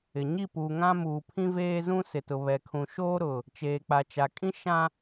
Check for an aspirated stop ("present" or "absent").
present